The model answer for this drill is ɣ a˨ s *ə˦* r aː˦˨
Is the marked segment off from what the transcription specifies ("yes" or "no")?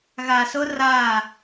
yes